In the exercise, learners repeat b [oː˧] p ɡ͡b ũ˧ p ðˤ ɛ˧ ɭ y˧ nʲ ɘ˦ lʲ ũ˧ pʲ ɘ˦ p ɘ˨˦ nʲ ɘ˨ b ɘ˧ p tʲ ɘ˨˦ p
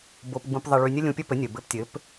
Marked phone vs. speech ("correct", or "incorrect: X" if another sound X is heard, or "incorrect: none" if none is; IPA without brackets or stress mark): incorrect: o˧